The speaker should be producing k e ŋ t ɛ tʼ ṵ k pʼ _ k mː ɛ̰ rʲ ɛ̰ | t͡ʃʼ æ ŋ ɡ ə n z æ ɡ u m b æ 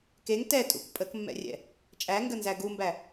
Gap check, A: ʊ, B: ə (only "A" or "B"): B